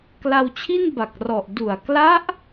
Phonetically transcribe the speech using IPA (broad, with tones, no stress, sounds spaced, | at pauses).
k l a˧ w t͡ɕʰ i˥˩ n b a˨˩ k̚ r ɔ˨˩ ʔ d u˨˩ a̯ k l a˦˥ ʔ